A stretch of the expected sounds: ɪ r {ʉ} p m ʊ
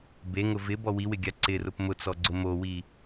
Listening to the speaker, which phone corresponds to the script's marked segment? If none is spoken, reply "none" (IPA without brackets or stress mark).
ʊ